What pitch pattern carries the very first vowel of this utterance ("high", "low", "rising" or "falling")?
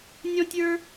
high